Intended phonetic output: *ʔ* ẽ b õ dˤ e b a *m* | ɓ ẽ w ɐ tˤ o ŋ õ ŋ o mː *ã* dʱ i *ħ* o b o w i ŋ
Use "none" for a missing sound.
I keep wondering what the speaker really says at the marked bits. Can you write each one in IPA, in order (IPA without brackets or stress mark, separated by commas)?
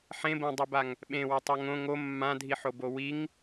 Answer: ħ, ŋ, ã, ħ